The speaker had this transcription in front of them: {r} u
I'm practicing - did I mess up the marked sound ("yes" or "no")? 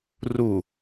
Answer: no